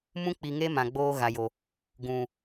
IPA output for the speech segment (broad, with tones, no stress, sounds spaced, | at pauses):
m ũ˦ k͡p i˨ ŋ e˦ m ã˨ ɡ͡b oː˦ ɣ a˨ j o˨ | ɡ ũ˨